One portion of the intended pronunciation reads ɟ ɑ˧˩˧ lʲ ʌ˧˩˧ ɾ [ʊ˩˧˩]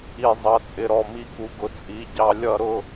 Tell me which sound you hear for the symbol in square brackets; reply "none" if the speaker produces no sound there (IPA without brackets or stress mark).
ʊ˩˧˩